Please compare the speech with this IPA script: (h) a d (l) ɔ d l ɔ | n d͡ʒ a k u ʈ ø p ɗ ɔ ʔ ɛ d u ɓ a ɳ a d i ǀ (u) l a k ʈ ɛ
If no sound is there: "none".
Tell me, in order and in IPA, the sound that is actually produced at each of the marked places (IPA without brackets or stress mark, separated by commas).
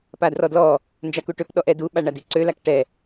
p, r, ø